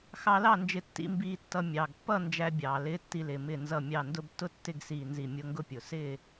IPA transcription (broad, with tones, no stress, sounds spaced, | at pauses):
x ɑ˧ l ɑ˥˨ n d͡ʒ ɪ˧˩ tː ḭ˧˥˧ m b iː˧ tː ʌ˧ mʲ ɑː˩ ɡ pː ʌ˥˨ n d͡ʒ æ˧ bʲ ɑː˩ l ɪː˧˥˧ tː i˧ l ɪː˩ m ɪ˧˩ n z ʌ˧˩ mʲ ɑ˧˩ n d ʊ˧ b tː ʊ˥˨ tː ɪ˥˨ ɡ s iː˧˩ n z i˧˩ mʲ ʊ˧˥˧ ŋ ɡ ʊ˥˨ pʲ ʊ˩ s ɪː˥˨